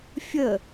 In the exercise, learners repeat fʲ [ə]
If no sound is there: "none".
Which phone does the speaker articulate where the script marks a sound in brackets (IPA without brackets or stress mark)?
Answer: ə